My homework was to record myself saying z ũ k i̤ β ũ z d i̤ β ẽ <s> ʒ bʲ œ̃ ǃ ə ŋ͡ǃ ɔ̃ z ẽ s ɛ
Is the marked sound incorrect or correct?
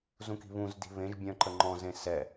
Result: incorrect